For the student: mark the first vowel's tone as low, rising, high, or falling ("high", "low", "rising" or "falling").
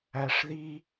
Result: high